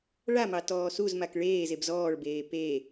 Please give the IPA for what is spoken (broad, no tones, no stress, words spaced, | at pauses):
ɭamɑ tɔːsuzmak ɭeːzeb zɔːɭbeː pe